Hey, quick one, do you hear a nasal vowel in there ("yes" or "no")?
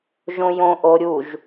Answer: yes